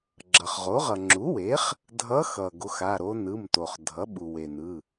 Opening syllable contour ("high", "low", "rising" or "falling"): low